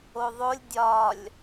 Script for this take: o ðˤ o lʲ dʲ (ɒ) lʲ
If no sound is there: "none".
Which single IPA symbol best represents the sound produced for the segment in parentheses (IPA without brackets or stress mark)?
ɒ